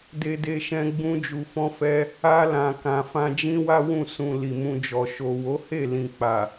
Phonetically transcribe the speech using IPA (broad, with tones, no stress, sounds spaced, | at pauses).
d e˧ d e˧ ʃ ɛ̃˧ ɡ͡b ũ˦ d͡ʒ u˧ f ɔ̃˦ f ɛ˦ | a˧ l ã˨ k ã˨ f ã˧ d͡ʒ ĩ˦ w a˦ w ũ˦˨ s ũ˨ l i˨ m ũ˧ d͡ʒ ɔ˨ ʃ o˨ w o˨˦ h e˦˨ l ĩ˨ k͡p a˨